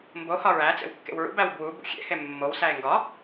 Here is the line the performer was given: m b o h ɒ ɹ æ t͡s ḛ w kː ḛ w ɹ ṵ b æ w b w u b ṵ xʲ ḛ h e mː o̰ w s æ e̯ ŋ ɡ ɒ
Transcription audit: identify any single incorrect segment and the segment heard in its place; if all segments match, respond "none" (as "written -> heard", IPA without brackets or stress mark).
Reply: o̰ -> o